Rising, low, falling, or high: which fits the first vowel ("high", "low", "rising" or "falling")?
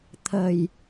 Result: low